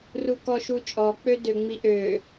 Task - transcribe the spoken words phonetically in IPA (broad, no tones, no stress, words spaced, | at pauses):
rukɔʃut͡ʃʼɔ k͡pødøŋ͡miʔø